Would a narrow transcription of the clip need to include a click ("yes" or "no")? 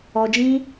no